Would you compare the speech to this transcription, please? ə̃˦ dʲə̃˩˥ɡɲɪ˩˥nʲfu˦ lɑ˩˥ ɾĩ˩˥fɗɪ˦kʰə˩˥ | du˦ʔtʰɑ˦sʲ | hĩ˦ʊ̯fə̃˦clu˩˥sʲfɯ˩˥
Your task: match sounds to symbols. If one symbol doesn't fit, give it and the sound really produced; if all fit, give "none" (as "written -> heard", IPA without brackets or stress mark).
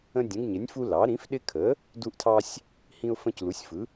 none